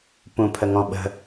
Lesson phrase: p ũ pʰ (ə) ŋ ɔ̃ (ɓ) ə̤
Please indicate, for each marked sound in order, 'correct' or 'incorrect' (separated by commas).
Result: correct, correct